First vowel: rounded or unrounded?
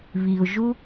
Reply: unrounded